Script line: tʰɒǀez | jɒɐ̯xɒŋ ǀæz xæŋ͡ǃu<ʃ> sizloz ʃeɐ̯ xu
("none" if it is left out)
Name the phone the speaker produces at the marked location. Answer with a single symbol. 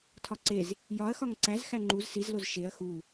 z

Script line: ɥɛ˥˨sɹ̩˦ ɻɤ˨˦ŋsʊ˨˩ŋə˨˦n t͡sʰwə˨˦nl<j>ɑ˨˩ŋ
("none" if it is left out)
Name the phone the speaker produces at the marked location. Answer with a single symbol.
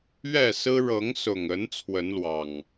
w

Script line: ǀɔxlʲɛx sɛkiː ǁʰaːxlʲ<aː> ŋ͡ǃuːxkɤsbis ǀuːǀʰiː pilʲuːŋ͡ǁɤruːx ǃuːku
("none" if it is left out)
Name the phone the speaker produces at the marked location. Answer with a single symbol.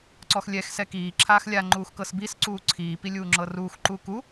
a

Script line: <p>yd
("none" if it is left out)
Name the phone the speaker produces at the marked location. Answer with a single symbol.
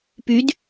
p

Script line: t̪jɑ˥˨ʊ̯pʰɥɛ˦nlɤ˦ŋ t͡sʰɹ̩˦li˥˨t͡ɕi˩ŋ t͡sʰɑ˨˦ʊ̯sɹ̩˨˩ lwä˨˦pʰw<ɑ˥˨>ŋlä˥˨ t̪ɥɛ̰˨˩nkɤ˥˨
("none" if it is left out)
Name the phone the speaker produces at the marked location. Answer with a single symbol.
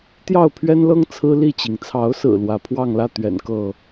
ɑ˥˨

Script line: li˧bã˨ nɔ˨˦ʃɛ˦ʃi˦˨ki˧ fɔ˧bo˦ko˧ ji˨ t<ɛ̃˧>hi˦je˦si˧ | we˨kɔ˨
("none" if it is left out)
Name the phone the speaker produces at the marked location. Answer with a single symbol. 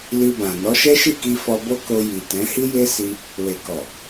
ɛ̃˨˦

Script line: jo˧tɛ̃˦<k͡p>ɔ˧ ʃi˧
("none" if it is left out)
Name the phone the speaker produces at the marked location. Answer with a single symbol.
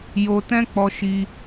k͡p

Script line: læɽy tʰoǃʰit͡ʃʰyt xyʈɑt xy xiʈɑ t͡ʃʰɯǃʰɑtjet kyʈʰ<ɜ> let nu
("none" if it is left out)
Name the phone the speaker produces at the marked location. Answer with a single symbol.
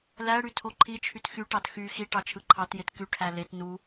æ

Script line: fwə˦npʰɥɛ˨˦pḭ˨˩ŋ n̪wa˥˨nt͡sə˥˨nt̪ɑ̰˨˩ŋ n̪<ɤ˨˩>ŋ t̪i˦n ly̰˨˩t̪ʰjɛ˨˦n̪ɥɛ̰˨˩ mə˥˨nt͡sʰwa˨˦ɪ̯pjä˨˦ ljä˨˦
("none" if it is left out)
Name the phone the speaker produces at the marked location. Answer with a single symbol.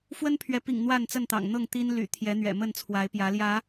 ɤ˥˨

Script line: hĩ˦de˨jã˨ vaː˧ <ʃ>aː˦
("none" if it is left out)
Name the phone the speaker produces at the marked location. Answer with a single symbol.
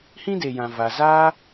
z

